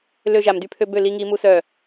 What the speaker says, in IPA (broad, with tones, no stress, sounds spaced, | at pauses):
l ø˧ ʒ a˨ m d y˧ pʰ ø˧ b ø˦˨ l i˧ ŋ i˧ m u˦ s œ˦˨